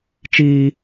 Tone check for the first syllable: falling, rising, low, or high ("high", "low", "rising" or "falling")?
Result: low